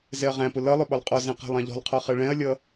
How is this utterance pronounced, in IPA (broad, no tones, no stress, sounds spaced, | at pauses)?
z ɛ ɐ̯ ʁ æ̃ p ʊ l ʌ lˠ ʊ ɓ ɒ lˠ qʼ ɔ z ɛ̃ q æ̤ lˠ ɑ̃ ʎ ɔ̤ lˠ qʰ ɒ χ ɜ ɭ ɛ̃ ɐ̯ lʲ ʌ